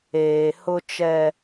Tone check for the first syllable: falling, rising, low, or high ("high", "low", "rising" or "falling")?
low